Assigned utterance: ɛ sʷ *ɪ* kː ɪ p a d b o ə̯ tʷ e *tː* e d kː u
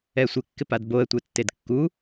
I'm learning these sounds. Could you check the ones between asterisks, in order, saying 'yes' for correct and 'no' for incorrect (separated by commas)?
yes, yes